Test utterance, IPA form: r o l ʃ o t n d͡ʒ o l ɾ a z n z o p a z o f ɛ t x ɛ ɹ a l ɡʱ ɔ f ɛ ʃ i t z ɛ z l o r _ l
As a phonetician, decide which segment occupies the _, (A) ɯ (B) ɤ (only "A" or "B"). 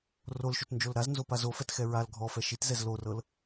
B